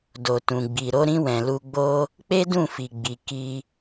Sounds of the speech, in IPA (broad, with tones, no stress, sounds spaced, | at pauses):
d o˨ t ũ˨ ɡ͡b i˨ ɾ o˨˦ ɾ ĩ˧ w ɛ̃˨ l u˧ ɡ͡b o˦ | k͡p e˦ d ũ˦˨ f i˨ ɡ͡b i˨ k i˧